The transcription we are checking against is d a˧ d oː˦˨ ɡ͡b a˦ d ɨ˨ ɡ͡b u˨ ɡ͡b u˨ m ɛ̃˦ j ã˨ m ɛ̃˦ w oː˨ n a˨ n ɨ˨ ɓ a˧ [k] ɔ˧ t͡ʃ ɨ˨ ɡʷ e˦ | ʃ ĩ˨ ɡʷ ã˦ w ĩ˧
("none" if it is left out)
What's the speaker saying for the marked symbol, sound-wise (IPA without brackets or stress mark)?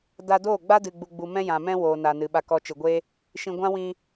k